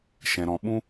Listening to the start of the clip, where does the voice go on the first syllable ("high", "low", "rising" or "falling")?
low